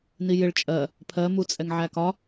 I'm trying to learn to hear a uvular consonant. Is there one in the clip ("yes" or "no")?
no